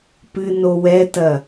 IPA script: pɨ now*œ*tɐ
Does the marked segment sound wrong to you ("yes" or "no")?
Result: yes